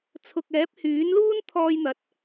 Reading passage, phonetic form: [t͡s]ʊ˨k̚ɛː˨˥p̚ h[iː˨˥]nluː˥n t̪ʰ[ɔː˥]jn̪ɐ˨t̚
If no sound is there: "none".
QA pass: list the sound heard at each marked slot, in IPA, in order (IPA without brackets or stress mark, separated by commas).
t͡sʰ, yː˨˥, ɔː˧